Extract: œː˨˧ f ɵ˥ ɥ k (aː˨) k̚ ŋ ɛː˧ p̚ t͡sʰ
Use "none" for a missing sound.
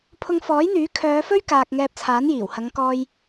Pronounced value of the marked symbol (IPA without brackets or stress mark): aː˨